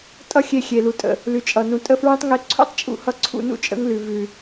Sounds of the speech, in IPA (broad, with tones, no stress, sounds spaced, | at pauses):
tʼ ʌ˦ xʲ e˧ xʲ e˨ l u˨ tʼ ə̰˨ | l ʉ˨ t͡ʃʼ ʌ˨ n ũ˨ tʼ ə˦˨ f ɹ ẽ˦ tˤ ŋ e˧ ǀʰ ṵ˦ tˤ t͡ʃʼ ṵ˦ h ʌ˦ ǀʰ ṵ˧ n ṵ˧ t͡ʃʼ ə̰˦ ŋ l ʉ˨ v ʉ˨